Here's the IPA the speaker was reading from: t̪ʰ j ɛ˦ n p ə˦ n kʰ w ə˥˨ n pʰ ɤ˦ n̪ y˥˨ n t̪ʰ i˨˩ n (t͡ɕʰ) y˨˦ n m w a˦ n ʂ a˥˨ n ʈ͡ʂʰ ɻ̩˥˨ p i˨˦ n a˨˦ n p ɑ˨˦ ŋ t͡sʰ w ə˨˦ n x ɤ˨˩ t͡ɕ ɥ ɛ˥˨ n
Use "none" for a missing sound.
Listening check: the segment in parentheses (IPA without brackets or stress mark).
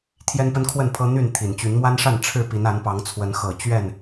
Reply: t͡ɕ